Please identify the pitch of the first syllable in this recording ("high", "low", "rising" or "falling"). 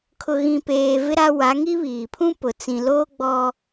low